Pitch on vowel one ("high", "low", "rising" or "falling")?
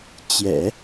low